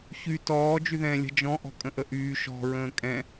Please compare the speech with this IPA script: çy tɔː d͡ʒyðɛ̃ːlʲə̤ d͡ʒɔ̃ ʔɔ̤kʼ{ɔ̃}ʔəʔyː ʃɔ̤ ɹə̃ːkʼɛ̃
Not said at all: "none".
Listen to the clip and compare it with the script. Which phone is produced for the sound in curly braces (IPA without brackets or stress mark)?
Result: ə̃